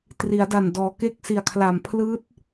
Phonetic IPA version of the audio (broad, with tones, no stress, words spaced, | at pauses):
tri˩˦a̯da˨˩n dɔː˩˦ke˦˥k̚si˨˩a̯kʰla˨˩m pʰlɯː˦˥t̚